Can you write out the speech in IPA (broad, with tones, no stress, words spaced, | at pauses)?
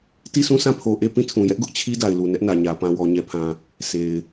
ti˦˨sũ˦˨sã˦˨pʰo˨ ʔe˦˨ pĩ˦˨tʰũ˨jɛ˦ʔ ɡʊ˦ʔt͡ɕʰi˦da˨ɪ̯lu˨ nɛ˦ʔnä˨ɲä˨ pã˨wɔ˨ɲɛ˨pʰã˨ | se˨ɪ̯